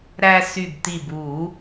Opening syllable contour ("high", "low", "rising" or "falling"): high